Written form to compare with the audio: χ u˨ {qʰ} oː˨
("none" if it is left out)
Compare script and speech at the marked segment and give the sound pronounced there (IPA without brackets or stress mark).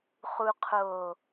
qʰ